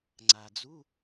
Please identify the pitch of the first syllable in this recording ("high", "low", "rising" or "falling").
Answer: low